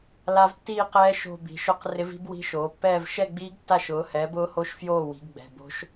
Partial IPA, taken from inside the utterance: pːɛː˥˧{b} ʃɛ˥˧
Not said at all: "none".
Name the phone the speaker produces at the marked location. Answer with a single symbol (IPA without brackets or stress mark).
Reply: v